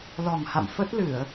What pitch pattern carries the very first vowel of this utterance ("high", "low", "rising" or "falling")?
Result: low